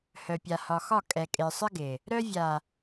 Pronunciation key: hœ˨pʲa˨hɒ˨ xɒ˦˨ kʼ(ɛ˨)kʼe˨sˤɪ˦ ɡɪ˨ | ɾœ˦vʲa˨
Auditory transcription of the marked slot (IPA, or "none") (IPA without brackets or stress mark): ɛ˨